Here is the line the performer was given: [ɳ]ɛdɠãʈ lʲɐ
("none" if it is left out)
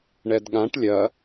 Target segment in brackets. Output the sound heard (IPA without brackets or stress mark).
ɳ